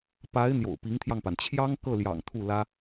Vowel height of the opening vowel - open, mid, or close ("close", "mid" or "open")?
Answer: open